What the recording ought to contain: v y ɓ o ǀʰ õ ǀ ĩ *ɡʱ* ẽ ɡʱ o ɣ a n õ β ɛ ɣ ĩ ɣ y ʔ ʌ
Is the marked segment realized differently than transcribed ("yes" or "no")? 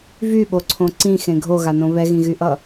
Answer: yes